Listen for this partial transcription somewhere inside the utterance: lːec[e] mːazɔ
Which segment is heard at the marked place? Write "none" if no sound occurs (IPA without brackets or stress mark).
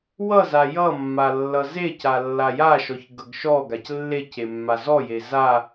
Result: e